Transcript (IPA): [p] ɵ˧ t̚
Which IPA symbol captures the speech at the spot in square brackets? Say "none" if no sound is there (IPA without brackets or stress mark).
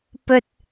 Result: p